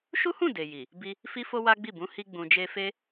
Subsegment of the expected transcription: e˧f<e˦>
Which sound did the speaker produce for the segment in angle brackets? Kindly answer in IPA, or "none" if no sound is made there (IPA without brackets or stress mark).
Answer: e˦